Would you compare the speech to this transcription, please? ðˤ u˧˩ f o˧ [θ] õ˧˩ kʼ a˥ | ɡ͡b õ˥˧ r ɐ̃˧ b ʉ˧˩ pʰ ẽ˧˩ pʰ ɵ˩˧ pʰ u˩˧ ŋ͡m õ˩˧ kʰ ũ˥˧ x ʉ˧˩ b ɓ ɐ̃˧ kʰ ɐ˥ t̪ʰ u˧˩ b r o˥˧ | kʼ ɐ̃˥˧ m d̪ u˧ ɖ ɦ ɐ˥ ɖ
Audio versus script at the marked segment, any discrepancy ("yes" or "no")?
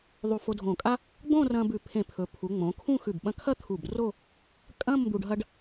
yes